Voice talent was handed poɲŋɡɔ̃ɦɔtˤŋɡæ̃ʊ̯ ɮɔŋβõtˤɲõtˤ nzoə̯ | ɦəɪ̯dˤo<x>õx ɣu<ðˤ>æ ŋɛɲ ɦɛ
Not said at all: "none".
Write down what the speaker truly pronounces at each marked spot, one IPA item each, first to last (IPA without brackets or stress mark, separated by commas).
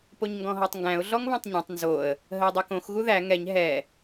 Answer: k, ð